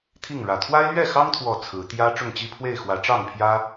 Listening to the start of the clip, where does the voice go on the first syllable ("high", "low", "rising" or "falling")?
falling